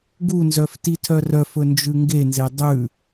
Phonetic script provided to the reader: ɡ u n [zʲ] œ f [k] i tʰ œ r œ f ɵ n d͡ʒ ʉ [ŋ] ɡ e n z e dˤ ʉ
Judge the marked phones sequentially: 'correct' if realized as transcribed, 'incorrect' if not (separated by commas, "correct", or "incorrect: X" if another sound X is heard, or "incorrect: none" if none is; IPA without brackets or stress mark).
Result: incorrect: z, incorrect: t, correct